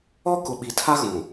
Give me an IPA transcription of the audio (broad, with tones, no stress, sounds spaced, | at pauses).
ɔ˦ k ʊ˨ ɓ i˨ tʰ a˦ ɣ ũ˨